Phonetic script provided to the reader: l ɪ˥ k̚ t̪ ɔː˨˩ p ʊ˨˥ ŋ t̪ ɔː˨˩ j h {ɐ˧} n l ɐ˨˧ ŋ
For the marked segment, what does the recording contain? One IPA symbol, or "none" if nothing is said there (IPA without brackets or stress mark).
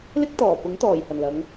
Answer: ɐ˨˩